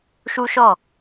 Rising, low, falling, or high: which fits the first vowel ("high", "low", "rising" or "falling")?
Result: high